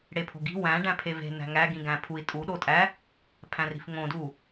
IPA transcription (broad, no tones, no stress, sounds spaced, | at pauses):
ɽ e pʰ o̤ ɡ i̤ w æ̃ ɖ æ̃ pʰ e v e̤ n æ̤ ŋ æ ɡ ĩ ɡ æ̃ pʰ u i̯ tʼ u ɗ o tʼ æ | pʰ æ̃ r i̤ f ŋ õ d u